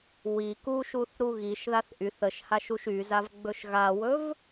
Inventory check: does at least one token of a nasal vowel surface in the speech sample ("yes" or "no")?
no